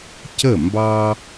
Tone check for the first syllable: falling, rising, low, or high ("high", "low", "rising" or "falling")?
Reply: falling